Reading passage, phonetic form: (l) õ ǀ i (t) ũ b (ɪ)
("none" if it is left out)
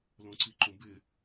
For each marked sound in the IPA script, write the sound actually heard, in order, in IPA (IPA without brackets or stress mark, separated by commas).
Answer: l, ǃ, ɪ